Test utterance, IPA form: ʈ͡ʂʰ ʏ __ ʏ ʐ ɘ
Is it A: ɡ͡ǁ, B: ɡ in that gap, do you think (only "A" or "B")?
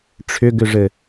B